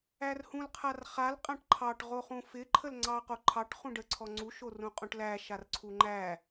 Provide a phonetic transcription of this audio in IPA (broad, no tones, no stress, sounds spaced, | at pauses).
æ r h ũ l qʰ a r χ a l qʼ ã ʈ ǃʰ ɑ ʈ ʁ o χ ũ f ɪ ǃʰ ə l ŋ͡ǀ ɑ q o ǃʰ ɑ ʈ χ ũ ɖ ə ǀʰ ɔ ŋ͡ǀ u ʃ o r ũ qʼ ũ ʈ l æ ʃ a r ǀʰ u ŋ͡ǃ æ